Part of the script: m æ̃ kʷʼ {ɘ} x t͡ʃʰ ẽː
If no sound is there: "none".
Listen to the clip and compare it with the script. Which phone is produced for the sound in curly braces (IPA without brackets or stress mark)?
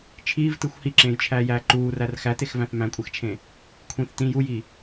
e